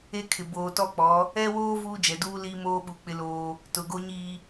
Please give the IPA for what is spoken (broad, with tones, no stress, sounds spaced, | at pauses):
e˦ kʰ ɪ˨ b oː˨ t ɔ˦˨ k͡p ɔ˨˦ | ɛ˦ w oː˦ v uː˦ d͡ʒ ɛ˨ d uː˦ l iː˦ m oː˦ ɓ u˨ k͡p ɪ˦ l oː˦ | t ʊ˨ ɡ o˦ ɲ iː˦